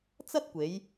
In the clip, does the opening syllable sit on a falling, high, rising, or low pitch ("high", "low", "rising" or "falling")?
high